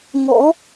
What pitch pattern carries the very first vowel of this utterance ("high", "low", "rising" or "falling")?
rising